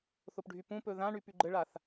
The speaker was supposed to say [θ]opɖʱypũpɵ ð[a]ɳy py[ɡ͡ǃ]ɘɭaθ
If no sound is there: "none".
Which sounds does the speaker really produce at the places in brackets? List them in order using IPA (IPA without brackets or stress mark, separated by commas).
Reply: θ, ã, ɡ͡ǃ